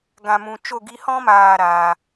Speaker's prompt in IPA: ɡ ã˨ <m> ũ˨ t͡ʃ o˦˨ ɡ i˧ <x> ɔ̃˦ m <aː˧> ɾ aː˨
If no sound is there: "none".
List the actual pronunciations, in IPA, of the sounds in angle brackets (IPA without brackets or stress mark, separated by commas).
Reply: m, h, aː˦˨